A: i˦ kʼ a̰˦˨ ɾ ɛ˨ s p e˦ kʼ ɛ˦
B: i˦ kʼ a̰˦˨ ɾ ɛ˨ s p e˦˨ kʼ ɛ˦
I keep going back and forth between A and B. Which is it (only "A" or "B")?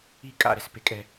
A